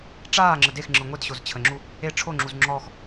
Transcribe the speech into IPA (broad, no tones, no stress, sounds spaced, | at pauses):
ʈ͡ʂ aː ŋ͡ǁ ə d e x ŋ͡ǁ ɯ ŋʷ e d ɕ o z t͡ɕʰ ə ŋ͡ǁ u | e ʈ͡ʂʰ o ŋ͡ǁ u z ŋ͡ǁ ɔ x